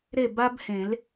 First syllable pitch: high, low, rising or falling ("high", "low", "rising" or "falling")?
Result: falling